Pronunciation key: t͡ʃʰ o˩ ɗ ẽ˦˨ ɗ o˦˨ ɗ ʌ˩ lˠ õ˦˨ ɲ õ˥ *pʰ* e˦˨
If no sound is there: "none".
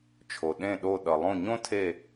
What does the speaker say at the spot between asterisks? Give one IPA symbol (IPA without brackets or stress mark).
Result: tʰ